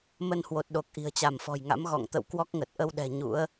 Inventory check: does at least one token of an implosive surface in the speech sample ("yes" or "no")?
yes